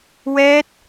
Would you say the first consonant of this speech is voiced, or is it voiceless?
voiced